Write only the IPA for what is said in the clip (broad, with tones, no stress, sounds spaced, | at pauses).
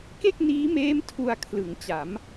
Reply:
k e˥˩ k̚ n iː˦˥ m eː˦˥ m tʰ u˧ a̯ kʰ l ɯ˩˦ ŋ t͡ɕ a˩˦ m